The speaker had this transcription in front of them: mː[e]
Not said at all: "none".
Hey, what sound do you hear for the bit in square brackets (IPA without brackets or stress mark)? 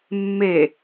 e